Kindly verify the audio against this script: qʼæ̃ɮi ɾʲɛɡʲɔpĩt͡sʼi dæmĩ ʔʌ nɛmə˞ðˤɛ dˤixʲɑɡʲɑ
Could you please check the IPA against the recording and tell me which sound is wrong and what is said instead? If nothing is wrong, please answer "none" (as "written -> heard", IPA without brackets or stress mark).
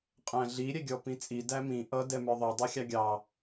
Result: n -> d